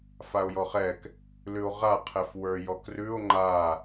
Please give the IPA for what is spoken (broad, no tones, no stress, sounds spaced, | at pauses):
f a o̯ j ɔ χ ɛ k | l ʉ o̯ ʁ a qʰ ɛ f w ə˞ j ɔ k r ʉ o̯ ŋ͡ǃ a